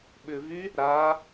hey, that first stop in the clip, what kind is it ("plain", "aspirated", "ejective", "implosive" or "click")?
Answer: implosive